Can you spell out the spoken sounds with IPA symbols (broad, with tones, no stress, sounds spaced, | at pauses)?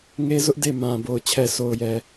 ŋ e˦ z ʊ˦ ʔ d e˦˨ m ã˨ b o˨ ʊ̯ t͡ɕʰ ɛ˨ s o˨ ʊ̯ j ɛ˨